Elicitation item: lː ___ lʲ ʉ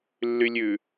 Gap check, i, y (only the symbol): y